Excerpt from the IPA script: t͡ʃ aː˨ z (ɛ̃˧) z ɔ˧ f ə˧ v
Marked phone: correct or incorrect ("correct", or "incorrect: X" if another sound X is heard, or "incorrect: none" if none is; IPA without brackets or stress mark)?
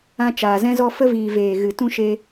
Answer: correct